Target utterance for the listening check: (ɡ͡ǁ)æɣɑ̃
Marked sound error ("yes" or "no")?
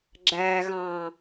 no